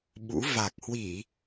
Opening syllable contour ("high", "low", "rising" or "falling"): rising